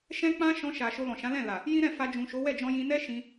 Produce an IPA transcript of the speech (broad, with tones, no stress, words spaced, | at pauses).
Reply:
ʃɛ̃˦k͡pã˦ ʃɔ̃˧ʃa˨ ʃo˧lɔ̃˨ʃã˨˦lɛ̃˦˨ la˨ | jĩ˦ɾɛ̃˦˨ fa˧ d͡ʒũ˨ʃo˨˦wɛ˦˨d͡ʒɔ̃˧ jĩ˧nɛ˦ʃĩ˧